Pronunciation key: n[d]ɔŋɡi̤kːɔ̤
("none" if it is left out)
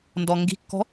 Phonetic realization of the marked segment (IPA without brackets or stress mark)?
d